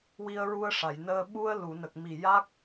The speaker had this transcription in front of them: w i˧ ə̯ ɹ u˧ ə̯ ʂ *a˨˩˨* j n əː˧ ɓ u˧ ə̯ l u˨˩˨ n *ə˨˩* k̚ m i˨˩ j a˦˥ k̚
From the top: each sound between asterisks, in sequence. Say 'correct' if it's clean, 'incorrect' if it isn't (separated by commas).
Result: correct, correct